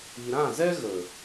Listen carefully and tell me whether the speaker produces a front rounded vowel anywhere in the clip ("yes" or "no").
no